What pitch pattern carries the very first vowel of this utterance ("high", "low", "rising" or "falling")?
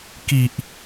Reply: low